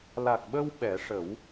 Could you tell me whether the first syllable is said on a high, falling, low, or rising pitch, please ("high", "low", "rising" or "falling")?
low